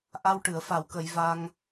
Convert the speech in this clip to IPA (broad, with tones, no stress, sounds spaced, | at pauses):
ʔ a˧ w ʈ ɨ˨˩˨ ə̯ f a˨˩˨ w k ə˨˩˨ j v a˧ ŋ